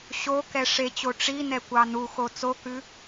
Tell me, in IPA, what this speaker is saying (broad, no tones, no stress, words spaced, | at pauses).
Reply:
ɕokɛ ʂet͡ɕo ʈ͡ʂinɛkʷɑ nuxo t͡sokʉ